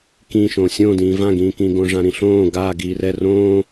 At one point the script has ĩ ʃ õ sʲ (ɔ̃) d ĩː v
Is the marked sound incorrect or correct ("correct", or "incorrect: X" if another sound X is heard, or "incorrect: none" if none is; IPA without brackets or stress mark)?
incorrect: õ